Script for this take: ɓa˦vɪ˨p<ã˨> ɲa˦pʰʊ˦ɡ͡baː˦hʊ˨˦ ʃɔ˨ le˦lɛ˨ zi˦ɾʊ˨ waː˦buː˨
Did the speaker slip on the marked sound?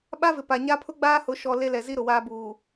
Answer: yes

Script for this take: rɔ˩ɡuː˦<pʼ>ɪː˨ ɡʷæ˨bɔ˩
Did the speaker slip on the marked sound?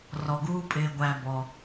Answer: no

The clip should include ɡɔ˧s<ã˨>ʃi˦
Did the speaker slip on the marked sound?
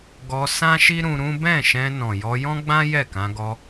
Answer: yes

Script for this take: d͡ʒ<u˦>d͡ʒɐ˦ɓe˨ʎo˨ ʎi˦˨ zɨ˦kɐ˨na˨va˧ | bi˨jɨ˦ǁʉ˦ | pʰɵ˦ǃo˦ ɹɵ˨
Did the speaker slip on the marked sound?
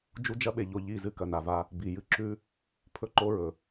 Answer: no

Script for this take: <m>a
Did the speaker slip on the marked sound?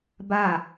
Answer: yes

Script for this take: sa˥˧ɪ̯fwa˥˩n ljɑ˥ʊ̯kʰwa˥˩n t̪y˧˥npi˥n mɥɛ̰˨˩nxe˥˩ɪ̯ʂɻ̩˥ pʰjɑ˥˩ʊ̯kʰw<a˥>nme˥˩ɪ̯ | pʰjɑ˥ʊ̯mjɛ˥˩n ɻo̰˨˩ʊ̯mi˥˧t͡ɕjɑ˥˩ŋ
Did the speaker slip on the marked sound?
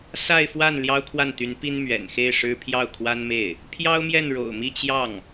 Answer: no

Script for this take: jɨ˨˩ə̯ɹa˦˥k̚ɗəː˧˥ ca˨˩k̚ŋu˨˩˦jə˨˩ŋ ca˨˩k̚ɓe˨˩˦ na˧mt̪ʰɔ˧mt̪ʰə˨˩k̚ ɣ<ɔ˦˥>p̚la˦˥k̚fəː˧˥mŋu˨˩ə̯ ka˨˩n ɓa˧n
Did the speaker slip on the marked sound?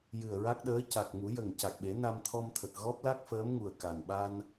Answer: no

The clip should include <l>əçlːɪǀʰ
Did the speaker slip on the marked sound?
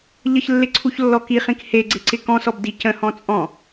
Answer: yes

